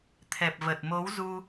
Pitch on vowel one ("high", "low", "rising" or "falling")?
low